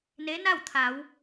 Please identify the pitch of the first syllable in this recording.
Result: rising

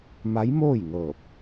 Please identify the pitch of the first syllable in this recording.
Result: rising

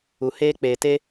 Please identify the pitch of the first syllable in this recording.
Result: low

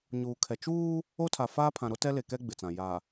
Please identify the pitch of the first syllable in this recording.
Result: low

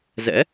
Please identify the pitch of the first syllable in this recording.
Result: rising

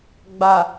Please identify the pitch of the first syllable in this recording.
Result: low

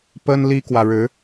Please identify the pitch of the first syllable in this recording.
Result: high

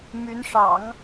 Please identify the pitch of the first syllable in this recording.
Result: rising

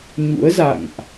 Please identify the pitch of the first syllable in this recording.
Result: rising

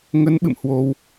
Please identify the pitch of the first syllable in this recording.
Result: rising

